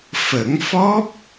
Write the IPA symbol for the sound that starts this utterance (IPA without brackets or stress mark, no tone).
f